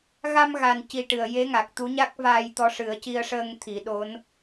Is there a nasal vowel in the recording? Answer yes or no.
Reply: no